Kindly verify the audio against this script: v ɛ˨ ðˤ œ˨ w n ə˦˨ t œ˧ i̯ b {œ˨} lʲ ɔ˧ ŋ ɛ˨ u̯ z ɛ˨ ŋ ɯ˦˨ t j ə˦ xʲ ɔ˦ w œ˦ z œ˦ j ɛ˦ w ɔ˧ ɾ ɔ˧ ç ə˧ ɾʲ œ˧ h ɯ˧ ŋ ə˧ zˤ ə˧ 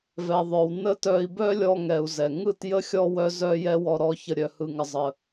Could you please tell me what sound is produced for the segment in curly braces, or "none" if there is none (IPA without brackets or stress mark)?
œ˦